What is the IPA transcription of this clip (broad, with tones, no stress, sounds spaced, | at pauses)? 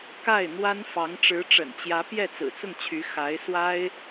k a˥˩ ɪ̯ n̪ w a˥ n f ɑ˧˥ ŋ ʈ͡ʂ ɻ̩˧˥ ʈ͡ʂ ə̰˨˩ n t͡ɕ j ä˧˥ p j ɛ˥˩ t͡s ɹ̩˨˩ t͡s ʊ˥˩ ŋ t͡ɕʰ y˧˥ x a˧˥ ɪ̯ s w a˥ ɪ̯